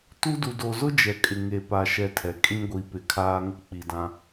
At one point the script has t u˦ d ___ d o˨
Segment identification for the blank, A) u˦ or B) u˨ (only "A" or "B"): B